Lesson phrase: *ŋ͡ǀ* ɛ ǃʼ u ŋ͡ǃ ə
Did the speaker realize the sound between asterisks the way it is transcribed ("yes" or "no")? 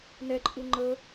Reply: no